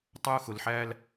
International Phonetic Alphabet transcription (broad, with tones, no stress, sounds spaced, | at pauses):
tˤ ʊ˦ x ʊ˨ l ħ æ˦ l